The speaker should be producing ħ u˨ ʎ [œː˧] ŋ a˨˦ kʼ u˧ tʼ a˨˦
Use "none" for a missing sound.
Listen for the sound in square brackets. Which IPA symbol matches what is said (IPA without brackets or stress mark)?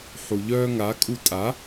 œː˧